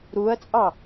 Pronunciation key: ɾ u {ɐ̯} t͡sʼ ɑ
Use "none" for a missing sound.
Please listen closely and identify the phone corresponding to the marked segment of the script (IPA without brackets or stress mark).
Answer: ɐ̯